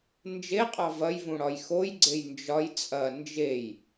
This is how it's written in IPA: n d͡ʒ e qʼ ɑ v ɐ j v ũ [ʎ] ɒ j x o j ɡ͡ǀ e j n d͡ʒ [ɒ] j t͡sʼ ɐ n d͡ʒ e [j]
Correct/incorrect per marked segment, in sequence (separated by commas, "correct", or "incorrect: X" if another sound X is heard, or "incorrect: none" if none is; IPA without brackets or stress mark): incorrect: ɽ, correct, correct